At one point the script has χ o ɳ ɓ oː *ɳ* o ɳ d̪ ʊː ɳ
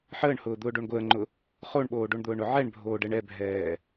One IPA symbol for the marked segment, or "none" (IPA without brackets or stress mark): ɖ